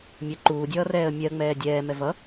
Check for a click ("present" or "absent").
present